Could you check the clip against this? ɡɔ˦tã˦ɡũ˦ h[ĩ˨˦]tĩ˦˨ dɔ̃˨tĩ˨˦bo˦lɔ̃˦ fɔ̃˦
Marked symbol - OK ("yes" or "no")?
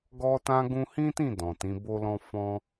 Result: no